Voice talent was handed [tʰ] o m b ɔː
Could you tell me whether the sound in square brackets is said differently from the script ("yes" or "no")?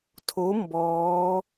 no